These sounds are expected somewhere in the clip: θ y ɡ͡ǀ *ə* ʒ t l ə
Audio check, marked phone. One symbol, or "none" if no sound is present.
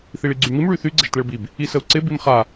ə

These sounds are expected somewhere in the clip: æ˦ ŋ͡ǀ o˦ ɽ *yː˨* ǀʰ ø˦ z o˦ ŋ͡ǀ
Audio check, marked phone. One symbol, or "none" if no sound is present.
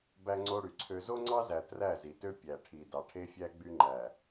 y˨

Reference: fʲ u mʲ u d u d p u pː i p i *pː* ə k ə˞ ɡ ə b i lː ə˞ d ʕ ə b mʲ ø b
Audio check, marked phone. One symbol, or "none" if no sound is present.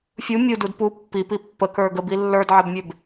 pː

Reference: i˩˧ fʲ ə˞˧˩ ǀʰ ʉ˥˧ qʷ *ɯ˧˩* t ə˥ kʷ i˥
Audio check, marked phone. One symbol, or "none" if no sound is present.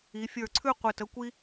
ɯ˧˩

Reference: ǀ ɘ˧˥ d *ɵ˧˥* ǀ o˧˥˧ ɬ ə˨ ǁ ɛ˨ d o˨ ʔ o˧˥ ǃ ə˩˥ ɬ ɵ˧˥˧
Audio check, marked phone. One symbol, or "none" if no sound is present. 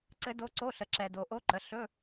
o˧˥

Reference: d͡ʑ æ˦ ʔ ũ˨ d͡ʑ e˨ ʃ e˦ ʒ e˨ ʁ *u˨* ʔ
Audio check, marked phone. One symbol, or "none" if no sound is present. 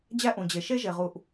u˨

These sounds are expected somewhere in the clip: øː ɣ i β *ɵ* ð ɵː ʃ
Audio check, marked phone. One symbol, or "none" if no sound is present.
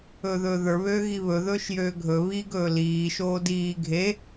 ɵ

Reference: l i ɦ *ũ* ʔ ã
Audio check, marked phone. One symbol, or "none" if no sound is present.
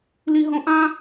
õ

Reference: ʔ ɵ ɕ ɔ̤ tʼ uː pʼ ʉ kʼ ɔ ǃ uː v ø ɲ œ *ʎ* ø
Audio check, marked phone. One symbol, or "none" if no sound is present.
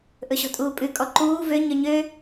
ɲ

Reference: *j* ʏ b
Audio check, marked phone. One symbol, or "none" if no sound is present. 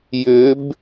j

